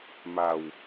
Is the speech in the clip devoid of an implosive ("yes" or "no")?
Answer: yes